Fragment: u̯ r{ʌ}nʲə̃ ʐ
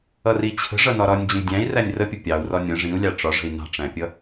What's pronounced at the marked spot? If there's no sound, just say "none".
ɒ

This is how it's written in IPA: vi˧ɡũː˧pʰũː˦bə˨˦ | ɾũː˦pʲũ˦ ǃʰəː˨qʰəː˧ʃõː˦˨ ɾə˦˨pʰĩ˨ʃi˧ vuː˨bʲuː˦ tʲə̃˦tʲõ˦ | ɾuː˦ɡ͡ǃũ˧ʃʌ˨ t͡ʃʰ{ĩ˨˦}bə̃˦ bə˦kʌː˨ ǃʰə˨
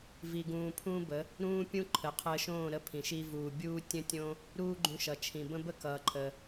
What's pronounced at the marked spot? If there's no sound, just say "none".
ĩ˨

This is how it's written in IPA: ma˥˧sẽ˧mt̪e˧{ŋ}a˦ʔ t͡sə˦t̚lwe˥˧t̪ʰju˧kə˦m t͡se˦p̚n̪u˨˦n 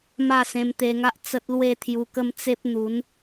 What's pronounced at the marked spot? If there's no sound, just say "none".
ŋ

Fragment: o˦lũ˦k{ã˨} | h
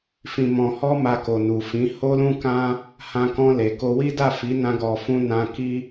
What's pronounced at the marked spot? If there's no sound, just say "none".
ã˦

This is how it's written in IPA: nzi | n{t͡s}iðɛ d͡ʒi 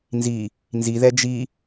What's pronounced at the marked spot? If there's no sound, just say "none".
z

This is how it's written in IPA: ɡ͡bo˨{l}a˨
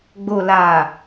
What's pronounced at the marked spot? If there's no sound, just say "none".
l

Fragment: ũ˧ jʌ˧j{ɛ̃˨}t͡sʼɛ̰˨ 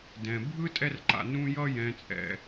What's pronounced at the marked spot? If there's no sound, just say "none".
ɛ̃˨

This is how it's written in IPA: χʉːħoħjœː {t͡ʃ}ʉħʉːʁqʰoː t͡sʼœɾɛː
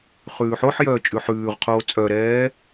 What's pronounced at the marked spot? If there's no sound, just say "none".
t͡ʃʼ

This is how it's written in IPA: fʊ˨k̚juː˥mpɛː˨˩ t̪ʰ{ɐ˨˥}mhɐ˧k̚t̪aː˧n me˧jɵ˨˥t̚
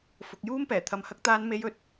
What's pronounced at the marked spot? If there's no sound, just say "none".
ɐ˨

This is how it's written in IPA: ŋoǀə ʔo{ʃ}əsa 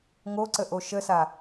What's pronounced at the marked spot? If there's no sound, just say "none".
ʃ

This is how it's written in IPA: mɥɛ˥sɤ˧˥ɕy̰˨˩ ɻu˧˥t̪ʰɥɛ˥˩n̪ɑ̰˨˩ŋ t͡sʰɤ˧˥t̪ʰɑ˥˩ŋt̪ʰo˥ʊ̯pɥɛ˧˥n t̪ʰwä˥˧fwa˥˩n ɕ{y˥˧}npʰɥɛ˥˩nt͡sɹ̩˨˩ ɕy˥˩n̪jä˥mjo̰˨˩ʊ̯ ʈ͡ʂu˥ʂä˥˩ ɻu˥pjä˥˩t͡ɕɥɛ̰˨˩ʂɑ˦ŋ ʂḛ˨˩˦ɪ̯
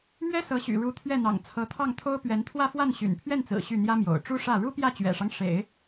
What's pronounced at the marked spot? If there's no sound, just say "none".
y̰˨˩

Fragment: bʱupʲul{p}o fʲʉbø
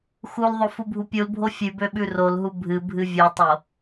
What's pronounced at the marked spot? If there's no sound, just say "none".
bʱ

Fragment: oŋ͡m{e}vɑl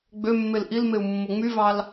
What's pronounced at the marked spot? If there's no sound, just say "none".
y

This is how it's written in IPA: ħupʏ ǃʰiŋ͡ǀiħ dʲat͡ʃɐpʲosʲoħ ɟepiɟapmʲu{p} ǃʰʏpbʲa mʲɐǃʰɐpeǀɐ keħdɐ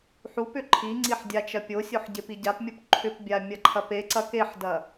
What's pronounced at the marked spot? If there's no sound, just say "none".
p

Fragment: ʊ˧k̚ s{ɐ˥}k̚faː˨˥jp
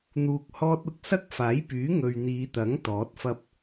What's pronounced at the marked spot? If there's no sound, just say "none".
ɐ˥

